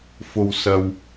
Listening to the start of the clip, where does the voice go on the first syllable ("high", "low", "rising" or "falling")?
low